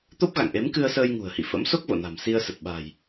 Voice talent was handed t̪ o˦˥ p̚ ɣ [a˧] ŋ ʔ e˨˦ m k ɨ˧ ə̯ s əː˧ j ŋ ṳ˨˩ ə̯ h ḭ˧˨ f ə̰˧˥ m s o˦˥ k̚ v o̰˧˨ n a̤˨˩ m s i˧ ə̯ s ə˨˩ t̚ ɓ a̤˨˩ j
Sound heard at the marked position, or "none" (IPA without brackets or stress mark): a̰˧˨